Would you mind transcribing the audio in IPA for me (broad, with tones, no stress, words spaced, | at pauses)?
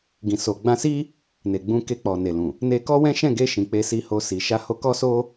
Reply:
ɡĩ˨so˨ ɡ͡bã˧si˦ | ne˨ɡ͡bũ˧ ke˧k͡pɔ˨ne˨lũ˨ | ne˧kɔ˦wɛ̃˦ ʃɛ̃˦˨ɡe˧ʃĩ˨ k͡pe˧si˧ho˧si˨ ʃa˨˦ho˧kɔ˦so˦